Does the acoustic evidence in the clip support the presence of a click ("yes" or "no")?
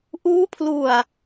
no